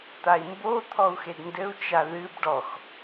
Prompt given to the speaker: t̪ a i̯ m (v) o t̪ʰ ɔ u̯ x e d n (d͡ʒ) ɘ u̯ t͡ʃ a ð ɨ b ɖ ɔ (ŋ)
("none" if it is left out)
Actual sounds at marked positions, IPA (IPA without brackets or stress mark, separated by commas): b, d, x